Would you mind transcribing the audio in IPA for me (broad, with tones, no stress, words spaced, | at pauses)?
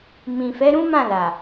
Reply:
mĩ˨ fɛ˨˦ɾũ˦mã˦˨ la˨